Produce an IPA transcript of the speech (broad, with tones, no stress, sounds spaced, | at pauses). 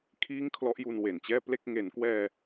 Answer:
kʰ iː˥˩ ŋ kʰ l ɔ˦˥ ʔ j u˧ n w e˨˩ n t͡ɕ ɛː˥˩ p l e˥˩ k̚ ŋ e˩˦ n k w ɛː˧